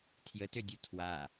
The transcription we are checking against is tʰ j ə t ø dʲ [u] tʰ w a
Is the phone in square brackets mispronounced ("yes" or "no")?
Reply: no